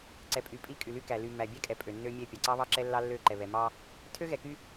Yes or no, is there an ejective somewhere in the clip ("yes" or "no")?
yes